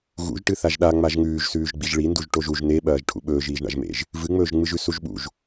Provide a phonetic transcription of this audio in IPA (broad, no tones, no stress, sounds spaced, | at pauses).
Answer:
ɣ ṵ ʒ ʈ ɨ θ a ʒ ɗ a ŋ͡m a ʒ ŋ ʉː ʒ s ʉː ʒ ɡ͡b i ʒ ɭ i n d u ʒ ʈ o ʒ u ʒ n e ɓ ɐː ʒ ʈʰ ṵ ɓ ɵː ʒ iː ʒ ɳ a̰ ʒ m ḛ ʒ | v ɨ ŋ͡m ɵː ʒ ŋ͡m ɨ ʒ ʉ s u ʒ ɓ ṵ ʒ